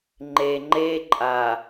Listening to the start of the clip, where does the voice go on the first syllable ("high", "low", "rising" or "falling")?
low